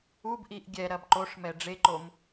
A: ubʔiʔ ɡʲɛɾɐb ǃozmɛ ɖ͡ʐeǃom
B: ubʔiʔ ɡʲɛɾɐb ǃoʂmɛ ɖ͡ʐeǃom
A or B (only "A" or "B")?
B